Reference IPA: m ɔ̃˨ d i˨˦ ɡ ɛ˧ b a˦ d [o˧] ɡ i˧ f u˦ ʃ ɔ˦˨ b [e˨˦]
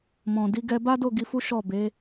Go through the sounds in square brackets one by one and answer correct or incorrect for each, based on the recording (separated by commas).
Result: incorrect, correct